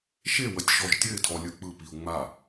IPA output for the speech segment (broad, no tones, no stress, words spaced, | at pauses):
ʃe wətʲʃɔʒtʲɘɪ̯tʰɔ lʲɯk͡pɯpiʊ̯ ŋ͡ma